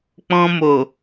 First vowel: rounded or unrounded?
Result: rounded